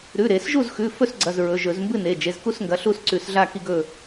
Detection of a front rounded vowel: absent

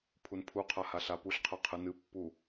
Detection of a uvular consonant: present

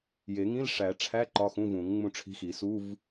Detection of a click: present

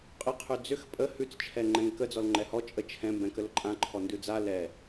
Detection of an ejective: present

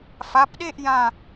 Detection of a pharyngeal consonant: absent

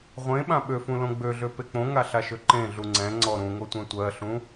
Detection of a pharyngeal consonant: absent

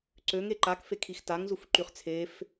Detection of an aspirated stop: present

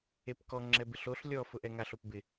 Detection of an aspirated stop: absent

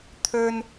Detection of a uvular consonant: absent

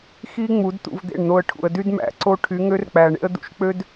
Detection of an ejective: absent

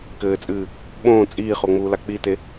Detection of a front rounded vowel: absent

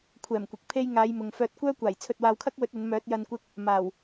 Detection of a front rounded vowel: present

